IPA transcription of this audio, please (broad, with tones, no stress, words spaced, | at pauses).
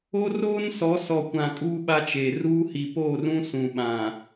o˦roː˦nsɔ˨˦ sɔ˨kʷã˨ kʼuː˦ɓa˦t͡ʃe˨ ruː˦ hi˨poː˦˨rũ˦ sũ˨ɓã˨